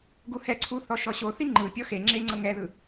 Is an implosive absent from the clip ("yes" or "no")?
yes